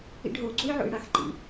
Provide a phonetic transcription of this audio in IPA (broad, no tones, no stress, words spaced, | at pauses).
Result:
ḭɖɦo ɡ͡ǀojʕo̰jɽaxǃḭ